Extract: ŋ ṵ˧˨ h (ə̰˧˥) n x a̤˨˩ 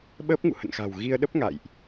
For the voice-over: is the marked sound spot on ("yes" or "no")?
no